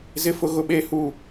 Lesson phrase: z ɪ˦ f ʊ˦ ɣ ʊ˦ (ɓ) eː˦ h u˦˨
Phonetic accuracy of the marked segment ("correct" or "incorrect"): correct